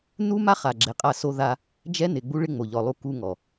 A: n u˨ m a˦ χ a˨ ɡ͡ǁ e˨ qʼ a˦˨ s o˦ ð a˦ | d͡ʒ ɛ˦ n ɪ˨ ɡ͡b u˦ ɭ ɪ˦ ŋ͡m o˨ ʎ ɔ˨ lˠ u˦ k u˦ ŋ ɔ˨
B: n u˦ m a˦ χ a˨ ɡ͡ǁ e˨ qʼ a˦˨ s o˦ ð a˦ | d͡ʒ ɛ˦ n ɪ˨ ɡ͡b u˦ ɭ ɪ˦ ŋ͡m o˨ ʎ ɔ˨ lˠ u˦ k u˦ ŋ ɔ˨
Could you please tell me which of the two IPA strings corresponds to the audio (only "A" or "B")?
B